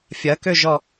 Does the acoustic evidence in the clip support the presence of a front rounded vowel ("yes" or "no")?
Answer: yes